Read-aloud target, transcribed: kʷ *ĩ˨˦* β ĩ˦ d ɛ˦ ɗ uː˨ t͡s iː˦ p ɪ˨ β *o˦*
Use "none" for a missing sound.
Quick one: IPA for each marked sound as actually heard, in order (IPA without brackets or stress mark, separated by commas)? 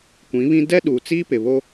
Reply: ĩ˨˦, o˦